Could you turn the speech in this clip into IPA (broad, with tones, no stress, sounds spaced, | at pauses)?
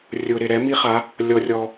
rʲ ʊ˩ ɾ ɪ˩ ɾ ɛ˩˧ m i˧ χ a˩˧ | lʲ ɔ˩ rʲ ɔ˩